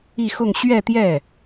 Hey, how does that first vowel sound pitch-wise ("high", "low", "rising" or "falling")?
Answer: falling